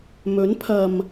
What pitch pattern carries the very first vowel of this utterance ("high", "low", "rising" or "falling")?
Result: rising